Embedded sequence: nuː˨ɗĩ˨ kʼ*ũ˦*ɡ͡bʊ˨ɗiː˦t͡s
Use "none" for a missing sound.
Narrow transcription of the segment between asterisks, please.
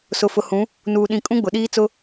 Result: ũ˦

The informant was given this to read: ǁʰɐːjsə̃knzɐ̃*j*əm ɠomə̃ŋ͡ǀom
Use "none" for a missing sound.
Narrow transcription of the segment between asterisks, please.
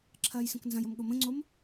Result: j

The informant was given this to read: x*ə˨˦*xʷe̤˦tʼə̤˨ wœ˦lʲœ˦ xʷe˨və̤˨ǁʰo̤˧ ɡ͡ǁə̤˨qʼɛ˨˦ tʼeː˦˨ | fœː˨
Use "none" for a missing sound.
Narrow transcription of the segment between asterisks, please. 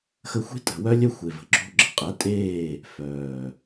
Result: ə˧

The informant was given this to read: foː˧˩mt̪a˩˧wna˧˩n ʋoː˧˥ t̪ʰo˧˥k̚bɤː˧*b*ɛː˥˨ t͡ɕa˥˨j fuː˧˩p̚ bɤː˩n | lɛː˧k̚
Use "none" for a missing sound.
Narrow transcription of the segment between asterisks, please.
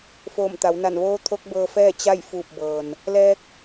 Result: f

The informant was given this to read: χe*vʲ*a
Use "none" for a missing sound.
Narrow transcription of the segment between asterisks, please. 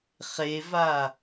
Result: v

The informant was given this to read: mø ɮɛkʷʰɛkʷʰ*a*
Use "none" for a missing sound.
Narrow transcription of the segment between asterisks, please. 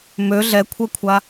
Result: a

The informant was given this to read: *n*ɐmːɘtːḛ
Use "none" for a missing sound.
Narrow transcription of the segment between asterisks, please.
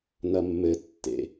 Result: n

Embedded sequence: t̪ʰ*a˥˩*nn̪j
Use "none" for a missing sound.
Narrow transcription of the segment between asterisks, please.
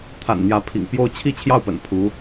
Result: a̰˨˩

